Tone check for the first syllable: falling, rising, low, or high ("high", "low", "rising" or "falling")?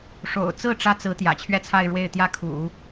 low